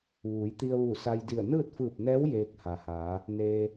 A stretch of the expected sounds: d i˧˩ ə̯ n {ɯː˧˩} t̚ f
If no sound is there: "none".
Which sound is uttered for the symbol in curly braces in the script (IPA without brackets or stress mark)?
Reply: ɯː˥˨